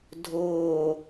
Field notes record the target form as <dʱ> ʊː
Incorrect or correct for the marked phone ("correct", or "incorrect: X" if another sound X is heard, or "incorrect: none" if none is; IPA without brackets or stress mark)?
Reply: correct